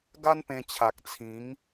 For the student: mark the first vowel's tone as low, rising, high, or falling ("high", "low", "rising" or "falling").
high